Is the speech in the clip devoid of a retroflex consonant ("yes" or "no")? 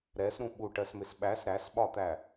no